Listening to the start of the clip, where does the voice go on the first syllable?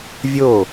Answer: falling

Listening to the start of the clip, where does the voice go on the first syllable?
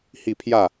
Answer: falling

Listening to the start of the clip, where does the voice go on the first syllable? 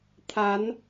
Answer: rising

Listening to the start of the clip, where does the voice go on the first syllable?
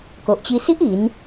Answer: low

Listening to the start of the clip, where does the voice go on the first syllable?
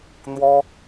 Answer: high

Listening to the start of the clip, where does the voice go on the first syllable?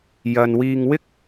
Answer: low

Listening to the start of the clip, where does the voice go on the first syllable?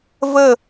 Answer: falling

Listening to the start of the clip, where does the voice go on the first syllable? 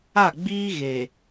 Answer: falling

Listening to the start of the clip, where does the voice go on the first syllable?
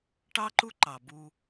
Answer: high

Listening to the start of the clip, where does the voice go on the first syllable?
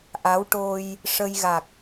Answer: rising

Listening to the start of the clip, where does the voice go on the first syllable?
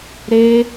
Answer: high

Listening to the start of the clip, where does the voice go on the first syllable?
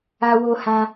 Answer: high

